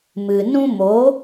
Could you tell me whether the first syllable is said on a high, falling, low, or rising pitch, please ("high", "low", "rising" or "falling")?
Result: low